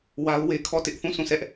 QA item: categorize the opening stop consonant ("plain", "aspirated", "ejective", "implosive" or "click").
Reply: aspirated